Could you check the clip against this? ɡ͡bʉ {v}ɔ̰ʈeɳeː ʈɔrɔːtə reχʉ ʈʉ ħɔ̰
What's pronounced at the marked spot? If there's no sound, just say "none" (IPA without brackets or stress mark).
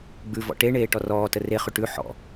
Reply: v